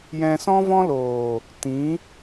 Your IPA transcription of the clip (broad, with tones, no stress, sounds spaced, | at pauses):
j ɛ̃˧ s ɔ̃˦ v ɔ̃˦ l oː˨ | t ĩ˨˦